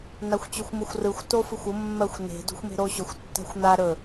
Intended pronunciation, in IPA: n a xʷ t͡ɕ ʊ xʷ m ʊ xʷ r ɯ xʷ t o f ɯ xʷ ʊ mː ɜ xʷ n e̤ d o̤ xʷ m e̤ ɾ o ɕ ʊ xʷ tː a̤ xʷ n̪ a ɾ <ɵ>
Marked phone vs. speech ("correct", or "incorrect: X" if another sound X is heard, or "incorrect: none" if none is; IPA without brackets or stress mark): correct